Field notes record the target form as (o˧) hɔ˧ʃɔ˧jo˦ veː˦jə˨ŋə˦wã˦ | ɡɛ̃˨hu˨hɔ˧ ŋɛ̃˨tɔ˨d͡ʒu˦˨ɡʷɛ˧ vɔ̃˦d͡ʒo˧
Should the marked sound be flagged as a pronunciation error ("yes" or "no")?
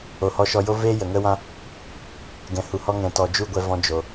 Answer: yes